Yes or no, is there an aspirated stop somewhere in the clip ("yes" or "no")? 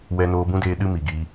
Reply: no